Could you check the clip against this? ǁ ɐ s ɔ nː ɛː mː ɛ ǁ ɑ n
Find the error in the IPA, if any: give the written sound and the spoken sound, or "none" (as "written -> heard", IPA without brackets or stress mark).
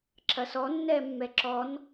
ɑ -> ɔ